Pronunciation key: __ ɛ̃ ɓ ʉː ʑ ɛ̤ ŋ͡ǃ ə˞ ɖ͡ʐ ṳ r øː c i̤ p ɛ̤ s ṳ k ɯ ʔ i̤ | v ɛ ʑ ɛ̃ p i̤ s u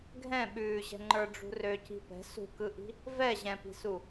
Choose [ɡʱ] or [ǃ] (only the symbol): ɡʱ